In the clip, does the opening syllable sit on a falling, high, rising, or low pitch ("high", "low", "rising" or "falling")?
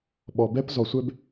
low